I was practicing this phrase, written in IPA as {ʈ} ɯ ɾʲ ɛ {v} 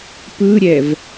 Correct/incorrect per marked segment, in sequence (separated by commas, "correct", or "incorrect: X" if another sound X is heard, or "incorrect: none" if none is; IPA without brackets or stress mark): incorrect: p, correct